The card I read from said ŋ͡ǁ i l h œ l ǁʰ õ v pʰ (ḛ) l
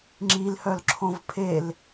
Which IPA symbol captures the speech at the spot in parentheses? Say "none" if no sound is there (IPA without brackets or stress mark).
e